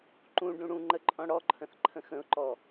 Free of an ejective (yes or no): no